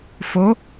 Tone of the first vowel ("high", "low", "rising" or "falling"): rising